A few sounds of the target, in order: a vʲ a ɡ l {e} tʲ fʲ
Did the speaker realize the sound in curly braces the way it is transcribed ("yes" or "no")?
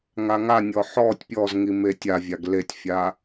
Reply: yes